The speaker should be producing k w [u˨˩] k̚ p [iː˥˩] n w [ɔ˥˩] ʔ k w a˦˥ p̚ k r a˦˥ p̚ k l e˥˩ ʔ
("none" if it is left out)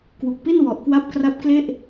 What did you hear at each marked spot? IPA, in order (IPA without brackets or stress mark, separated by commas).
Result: u˨˩, i˥˩, ɔ˨˩